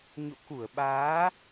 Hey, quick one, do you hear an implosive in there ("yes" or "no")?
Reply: yes